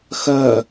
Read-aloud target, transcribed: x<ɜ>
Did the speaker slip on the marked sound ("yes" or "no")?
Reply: no